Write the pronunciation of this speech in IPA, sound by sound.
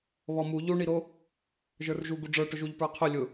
β ɔ m u ʎ u ɳ i ɾ o | ʒ ə˞ r ʒ u ɡ u ɖ͡ʐ ə˞ ʈ ʊ ʒ u ʎ p ə˞ qʰ ʊ lʲ ʊ

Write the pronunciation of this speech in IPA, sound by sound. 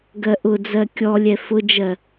ɡ ɜ ʔ ʊ d͡z ɜ kʲ ɔ lʲ ɛ f ʊ d͡ʒ ɜ

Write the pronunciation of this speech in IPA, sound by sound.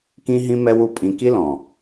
k ĩ˦ ɦ ĩ˦ m ɛ˦ w u˦˨ pʼ ĩ˧ k i˦ l ɔ̃˨

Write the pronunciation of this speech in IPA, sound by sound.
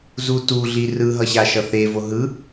z u t u ɮ i r ɯ ɦ ʌ ɕ a ʃ ʌ θ e v o ɦ ɯ

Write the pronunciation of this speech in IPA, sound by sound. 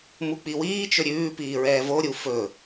m u k͡p i w iː t͡ʃ ɵ ɾʲ ʉː p iː ɹ ɛː v o ɾʲ u f ɵ

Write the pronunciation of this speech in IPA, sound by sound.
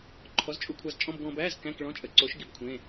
ǃʰ ɔ˨˥ z t͡ʃʼ u˧ kʷʰ ɑ˧ z t͡ʃʼ ɔ̃˧˥˧ b ɡ ɔ̃˧ b æː˧˥˧ z k æ̃˧˥˧ k ɭ ɔ̃˧˥˧ t͡ʃʼ ə˨˥ ǀ o˨˥ ʃ ɡ i˨˥ b kʷʰ ẽ˧˥˧

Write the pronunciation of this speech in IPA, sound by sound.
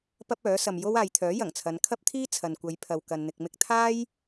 p ɐ˥ p̚ œː˨˥ s ɐ˨ m j o˥ w aː˨ j t̪ʰ œː˨˥ j ɐ˨˩ ŋ t͡sʰ ɐ˨˧ n kʰ ɐ˥ p̚ t̪ʰ iː˥ t͡sʰ ɐ˨ n kʷ ɐ˨˧ j pʰ ɐ˨ w k ɐ˨ n n̪ ɪ˨ k̚ m ɪ˧ k̚ t̪ʰ aː˥ j

